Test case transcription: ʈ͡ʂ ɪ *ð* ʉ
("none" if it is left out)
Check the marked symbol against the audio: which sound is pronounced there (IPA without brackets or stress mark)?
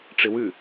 w